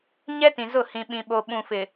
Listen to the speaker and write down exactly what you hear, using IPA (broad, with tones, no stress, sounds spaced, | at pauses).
ɲ ɛ˦ t ĩ˨ z ʊ˦˨ h ĩ˨ ɓ ĩ˨ ɓ o˨ ɓ ũ˨ f ɪ˨